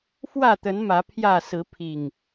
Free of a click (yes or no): yes